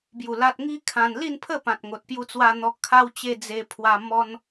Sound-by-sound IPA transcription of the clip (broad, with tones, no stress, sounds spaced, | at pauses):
b j u˨˩ l a˨ t̚ ŋ i˦ kʰ ã˧ n l i˥˧ n pʰ ə˥˧ p ã˨ t̚ ŋ o˨ t̚ p j u˧ t͡s w a˧ n̪ ɔ˧ kʰ a˧ w t͡ɕ e˧ d͡z e˧ pʰ w a˧ m ɔ˧ n